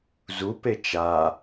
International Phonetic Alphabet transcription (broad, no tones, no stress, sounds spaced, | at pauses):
z u p e t͡ʃ a